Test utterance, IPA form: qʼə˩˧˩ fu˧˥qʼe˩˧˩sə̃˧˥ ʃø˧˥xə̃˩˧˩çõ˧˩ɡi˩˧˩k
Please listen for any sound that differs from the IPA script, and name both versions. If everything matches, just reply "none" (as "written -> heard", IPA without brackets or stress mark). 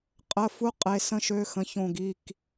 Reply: none